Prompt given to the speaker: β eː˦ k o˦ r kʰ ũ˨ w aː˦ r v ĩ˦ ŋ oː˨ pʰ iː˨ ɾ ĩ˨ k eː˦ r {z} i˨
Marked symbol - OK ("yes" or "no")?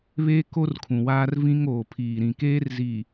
yes